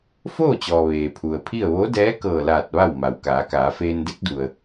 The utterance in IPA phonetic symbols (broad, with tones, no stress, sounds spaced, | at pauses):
f oː˥˨ t͡ɕ ɔː˩ ʋ eː˩ pʰ u˩ ə̯ pʰ i˥˨ ə̯ ʋ o˧˥ d ɛː˧˥ k ɤː˧˩ l aː˧˩ t̚ ʋ a˥˨ w m a˩ w k aː˩˧ k aː˩˧ f eː˧ n d e˧˥ k̚ d u˩ ə̯